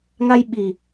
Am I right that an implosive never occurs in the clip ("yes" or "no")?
no